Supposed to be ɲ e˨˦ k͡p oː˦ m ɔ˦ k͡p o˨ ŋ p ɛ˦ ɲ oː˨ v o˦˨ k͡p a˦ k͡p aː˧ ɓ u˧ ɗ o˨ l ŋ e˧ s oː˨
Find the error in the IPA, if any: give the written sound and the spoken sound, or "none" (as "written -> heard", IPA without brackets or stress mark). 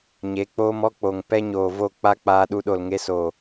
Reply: ɓ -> ɗ